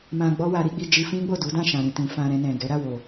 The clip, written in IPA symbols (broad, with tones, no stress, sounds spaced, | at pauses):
m ã˧ ɡ͡b ɔ˦ w a˧ ɾ i˦ ɡ͡b i˧ d͡ʒ i˧ f ĩ˦ ɡ͡b o˦˨ d u˨˦ d ã˦˨ ʃ ã˨ ɾ ĩ˨ t ĩ˨ f ã˧ ɾ ɛ̃˧ n ɛ̃˨ ɡ ɛ˨˦ ɾ a˦˨ w o˨